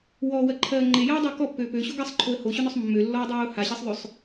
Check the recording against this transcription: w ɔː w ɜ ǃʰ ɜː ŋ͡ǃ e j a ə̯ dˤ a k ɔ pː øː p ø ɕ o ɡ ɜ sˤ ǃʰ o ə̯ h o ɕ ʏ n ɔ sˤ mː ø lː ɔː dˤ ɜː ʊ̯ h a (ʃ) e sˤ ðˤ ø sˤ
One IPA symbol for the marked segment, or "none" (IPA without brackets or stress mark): ɕ